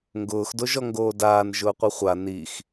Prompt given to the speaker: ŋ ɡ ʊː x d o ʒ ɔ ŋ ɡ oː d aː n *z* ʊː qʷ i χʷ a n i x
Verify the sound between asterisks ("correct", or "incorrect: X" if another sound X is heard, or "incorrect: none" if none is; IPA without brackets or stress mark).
incorrect: ʒ